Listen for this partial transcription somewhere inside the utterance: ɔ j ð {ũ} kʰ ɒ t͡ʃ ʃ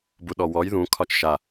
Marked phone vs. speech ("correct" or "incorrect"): correct